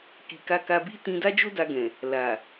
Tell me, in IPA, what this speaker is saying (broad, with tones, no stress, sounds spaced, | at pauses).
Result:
k i˨ k a˧ k a˧ b i˦ t ĩ˧ d a˦ d͡ʒ o˦ d a˧ ɡ ɛ̃˨ | l a˨